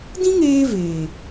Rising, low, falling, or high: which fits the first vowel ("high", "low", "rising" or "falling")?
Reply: high